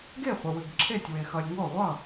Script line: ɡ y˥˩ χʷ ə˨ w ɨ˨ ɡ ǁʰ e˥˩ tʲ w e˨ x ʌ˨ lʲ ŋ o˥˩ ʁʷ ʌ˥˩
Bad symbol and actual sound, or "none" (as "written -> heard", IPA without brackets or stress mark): y˥˩ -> e˥˩